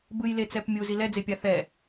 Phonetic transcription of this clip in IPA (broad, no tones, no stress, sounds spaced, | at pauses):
b ɯ j l e t͡s ɛ p mʲ u z i l ɛ d͡z e pʲ a θ ɛ